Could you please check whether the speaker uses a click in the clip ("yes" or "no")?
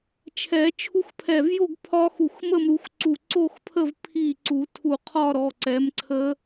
yes